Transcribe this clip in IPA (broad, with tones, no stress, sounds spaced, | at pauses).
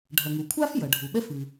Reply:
ɖʱ ɐ˩ ŋ u˩ kʷʰ a˥ f j ɐ˩ ɖʱ u˩ ɓ ɛ˥ f ɨ˩